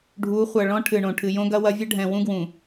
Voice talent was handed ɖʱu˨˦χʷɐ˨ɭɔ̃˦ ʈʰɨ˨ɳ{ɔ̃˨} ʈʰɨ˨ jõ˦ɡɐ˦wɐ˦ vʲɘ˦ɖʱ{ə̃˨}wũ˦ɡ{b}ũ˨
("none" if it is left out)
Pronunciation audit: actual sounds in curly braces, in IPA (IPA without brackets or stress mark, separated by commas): õ˨, ɛ̃˨, w